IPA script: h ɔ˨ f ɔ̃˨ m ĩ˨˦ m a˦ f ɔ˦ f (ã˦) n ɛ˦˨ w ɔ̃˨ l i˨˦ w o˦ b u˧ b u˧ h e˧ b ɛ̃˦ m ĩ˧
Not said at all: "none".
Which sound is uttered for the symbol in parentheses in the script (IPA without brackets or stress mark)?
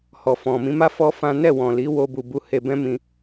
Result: ã˦